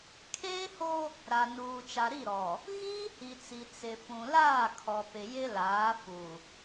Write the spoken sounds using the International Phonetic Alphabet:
kʰ eː˦ h o˦ | ɾ a˨ n uː˨ t͡ʃ a˨ ɾ i˦˨ ɾ ɔ˨ | ɣ iː˦ h i˨ t͡s i˨ t͡s ɪ˨ f ũ˨ l aː˦˨ kʰ ɔ˨ p ɪ˨ j ɪ˦ l aː˨˦ f u˨

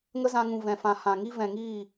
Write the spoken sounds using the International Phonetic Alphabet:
ŋ ə˦ z ã˧ ŋ ũ˨ v ɛ̃˨ f ã˨ h ã˨ ŋ i˦ v ɛ̃˨ ŋ iː˦˨

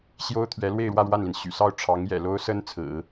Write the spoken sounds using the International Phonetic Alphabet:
ɕ j o˥ ʊ̯ t̪ʰ ɥ ɛ˧˥ l w e˥˧ ɪ̯ ɻ w ä˥˧ ɻ w a˥˩ n l i˩ n ɕ y̰˨˩ s ɑ˥˩ ʊ̯ ʈ͡ʂʰ ɑ˧˥ ŋ j ɛ̰˨˩ l o˥ ʊ̯ s ə˥ n t͡sʰ ɹ̩˨˩˦

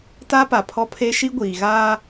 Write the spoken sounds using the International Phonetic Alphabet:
t a˦ p a˨ pʰ ɔ˦ pʰ e˦ ʃ i˦ ɡʷ iː˨ ɣ aː˦

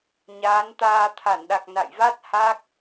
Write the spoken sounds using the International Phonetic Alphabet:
ɲ aː˨˦ n t̪ aː˧ t̪ʰ a˧˩ n ɗ a˨˩ k̚ n a̰˧˨ j v a˦˥ t̚ h a˦˥ k̚

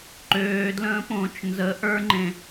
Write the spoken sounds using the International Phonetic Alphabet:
ǃ øː d l ə̃ː p õː t͡ʃ n z ə ʔ ə˞ ŋ͡ǃ ẽ

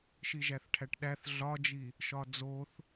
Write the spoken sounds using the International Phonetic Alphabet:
ʃ i ʒ æ θ ʈʰ æ ʈ ɗ æ θ ɮ ɒ d͡ʒ i | ʃ ɒ d͡z o θ

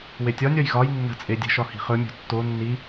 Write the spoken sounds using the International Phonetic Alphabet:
w e tʲ ɒ nʲ ɒ j ɣ ɒ j nː ə̤ t͡sʼ e dʲ ə̤ ʃ ɒ h i̤ χ ɵ mʲ o̤ tː o nː i

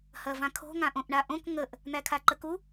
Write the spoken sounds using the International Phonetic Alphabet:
h ɐ v ã kʰ o̤ ŋ ã ʔ õ ʔ ɳ a ʔ õ k ŋ ə ʔ | n̪ æ kʰ a ǃ ə k u

